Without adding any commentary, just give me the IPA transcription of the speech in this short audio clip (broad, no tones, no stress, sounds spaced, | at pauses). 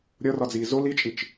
ɾʲ ɒ r ɒ d͡z iː z o l i t͡ʃʼ i t͡ʃ